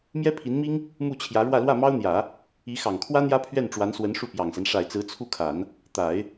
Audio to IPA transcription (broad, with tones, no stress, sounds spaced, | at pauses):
m j ɛ˥ pʰ i˧˥ n m i˥ ŋ | m u˥˩ t͡ɕʰ j ä˧˥ ɻ w ä˥˧ l w ä˥˩ m ɑ˥ ʊ̯ n̪ j ä˨˩˦ | i˧˥ x ɑ˨˩ ŋ kʰ w ä˥ n̪ j ä˥ pʰ ɥ ɛ˥˩ n ʈ͡ʂ w a˧˥ n s w ə˧˥ n ʂ u˥˩ p j ɑ˨˩ ŋ s a˦ n ʂ a˨˩ ɪ̯ t͡s ɹ̩˧˥ t͡sʰ u˥˩ kʰ a˨˩˦ n | t̪ a˨˩˦ ɪ̯